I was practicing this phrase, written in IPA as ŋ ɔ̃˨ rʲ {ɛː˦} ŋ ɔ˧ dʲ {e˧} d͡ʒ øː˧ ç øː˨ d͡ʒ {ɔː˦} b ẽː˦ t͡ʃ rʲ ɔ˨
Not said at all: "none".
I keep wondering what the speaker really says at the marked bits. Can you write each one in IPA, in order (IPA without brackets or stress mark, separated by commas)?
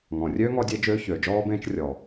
øː˦, e˧, ɔː˦